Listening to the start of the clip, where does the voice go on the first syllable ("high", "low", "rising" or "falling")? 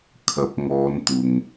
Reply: rising